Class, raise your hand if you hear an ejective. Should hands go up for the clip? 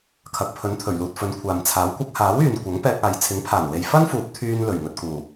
no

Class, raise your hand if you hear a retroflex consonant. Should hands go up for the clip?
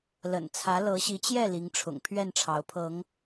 yes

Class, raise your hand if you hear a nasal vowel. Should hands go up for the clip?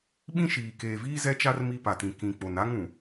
yes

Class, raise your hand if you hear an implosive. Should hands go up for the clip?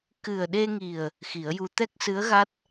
yes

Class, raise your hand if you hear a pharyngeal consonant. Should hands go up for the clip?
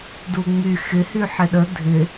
yes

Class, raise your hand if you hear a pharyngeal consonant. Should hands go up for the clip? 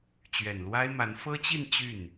no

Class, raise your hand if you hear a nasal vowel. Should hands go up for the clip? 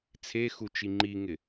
no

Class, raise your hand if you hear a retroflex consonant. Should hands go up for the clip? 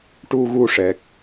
yes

